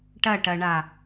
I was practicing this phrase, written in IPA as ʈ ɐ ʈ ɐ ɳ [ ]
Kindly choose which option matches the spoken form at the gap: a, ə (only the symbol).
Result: a